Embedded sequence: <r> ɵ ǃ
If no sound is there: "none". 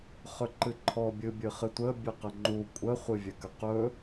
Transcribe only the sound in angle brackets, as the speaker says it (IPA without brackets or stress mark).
χ